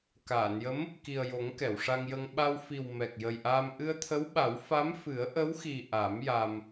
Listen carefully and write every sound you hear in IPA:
kaː˨˩˨njə˧˥m | ki˨˩ə̯jo˨˩˦ŋ kɛ˨˩˨wʂa˧ŋjə˧ŋ ɓa˧wfi˨˩w mɛ˨˩k̚ jə˨˩jʔaː˧m ʔɨ˧ə̯t̪ʰə˧˥wɓa˨˩˦w fa˧˥mfɨ˨˩˦ə̯ʔə˧˥wxi˨˩ ʔa˨˩˦m ja˧m

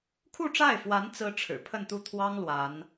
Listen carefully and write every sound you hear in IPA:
kʰu˥˧ʈ͡ʂa˥˩ɪ̯fwa˧˥n t͡sɹ̩˥ʈ͡ʂʰɻ̩˨˩ pʰə˥˧nt̪u˥˩t̪ʰwɑ˥ŋ lwa˧˥n

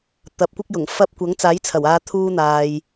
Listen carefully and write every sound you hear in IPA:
t̪ɐ˨˥p̚kʷɪ˥k̚jʊ˨˩ŋfɐ˥p̚ kʷɐ˨˥ŋt͡saː˨˥jt͡sʰɐ˨˩waː˨˧ t̪ʰuː˥n̪aː˨j

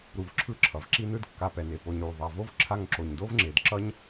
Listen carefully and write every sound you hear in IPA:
ɾu˨vǁʰɯ˦ǁʰʌ˩v ǁi˦nɯ˦d kːa˨pɛ˩ ne˩po˨ɲɾu˩ ðˤa˨vo˦v ǁʰa˦ŋǁo˨ɲ do˥vŋ͡ǁe˨d ǁʌ˥ɲ

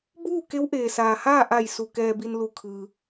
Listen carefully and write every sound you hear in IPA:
buː˥˨ke˧˥w ʔeː˩saː˩haː˥˨ ʔa˧˩j su˧˩kɛː˧bi˧nlu˧˩ kʰɯː˩

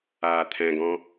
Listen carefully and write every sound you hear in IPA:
aːt̪ʰɛ̃ɡɔ̃

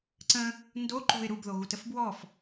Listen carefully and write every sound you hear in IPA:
ǀə̃ | ndo ǃo̤ɪ̯ ɾubðoɣutəf bwɔf

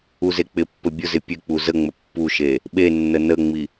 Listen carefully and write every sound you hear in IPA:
uzek͡pɪpːɘ bʲʊzɪ pʲɘk͡pu zəŋ͡mə pːuʃe | ɓenːə nəŋ͡mi

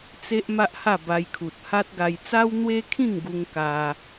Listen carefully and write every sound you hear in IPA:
t͡se˦ʔ ma˦ʔha˥˧ba˧jkʰu˨t̚ ha˦t̚ɡa˧j t͡sa˦wn̪we˦kʰĩ˥˧ŋɡu˧ŋ ka˦

